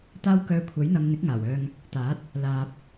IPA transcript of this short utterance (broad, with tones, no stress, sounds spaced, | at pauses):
t̪ aː˧ w k œː˨ kʷʰ ɐ˨˥ j n̪ ɐ˨˧ m n̪ ɪ˨˥ k̚ ŋ aː˨˩ w œː˧ ŋ | t̪ aː˨˥ t̚ | l aː˨ p̚